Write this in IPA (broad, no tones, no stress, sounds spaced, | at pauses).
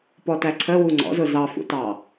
p ɔ t æ ǀʰ ə w u ŋ͡ǀ ɔ̰ z ʊ z ɑ f ṵ t ɑ